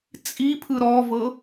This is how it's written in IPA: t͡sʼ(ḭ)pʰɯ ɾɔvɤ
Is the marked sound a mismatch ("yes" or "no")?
yes